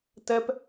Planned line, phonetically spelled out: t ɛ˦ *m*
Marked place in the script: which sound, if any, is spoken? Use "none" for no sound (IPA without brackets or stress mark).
p